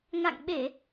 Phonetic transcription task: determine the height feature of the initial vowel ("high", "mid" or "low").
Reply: low